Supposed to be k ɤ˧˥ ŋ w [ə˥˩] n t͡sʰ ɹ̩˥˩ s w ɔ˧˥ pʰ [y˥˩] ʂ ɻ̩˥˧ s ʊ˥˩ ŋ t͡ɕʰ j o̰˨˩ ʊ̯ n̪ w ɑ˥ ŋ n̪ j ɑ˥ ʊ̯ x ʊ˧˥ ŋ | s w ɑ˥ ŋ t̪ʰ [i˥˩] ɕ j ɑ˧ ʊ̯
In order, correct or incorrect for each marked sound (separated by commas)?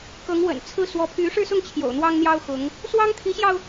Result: incorrect, incorrect, incorrect